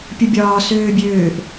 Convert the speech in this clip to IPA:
pʲ ə bʲ ɒː s øː bʲ øː ʔ

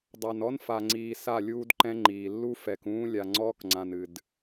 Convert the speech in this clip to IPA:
dˤ a˨ n ɔ˦ n f a˨ ŋ͡ǀ iː˨ s a˦˨ lʲ uː˦ d ǃ ɛ̃˦ ŋ͡ǃ iː˨ lː u˦ f ɛ˨ k ũː˦ lʲ a˨ ŋ͡ǀ ɔː˦ k ŋ͡ǀ ã˨ n ɨ˨ d

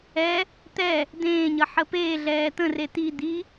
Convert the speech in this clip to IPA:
ɛ | t̪ ɛ | d̪ ẽː ɲ ʌ ħ ə p eː ɮ ɛː t̪ ə̃ r e t̪ i d̪ i

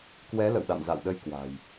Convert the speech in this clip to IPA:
k w ɛ˨˦ l ə̰˧˨ w ɗ a̰˧˨ m z a̰˧˨ w ɗ ə˧ j k w a̤˨˩ j

